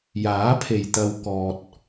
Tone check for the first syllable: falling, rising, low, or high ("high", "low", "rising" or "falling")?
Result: rising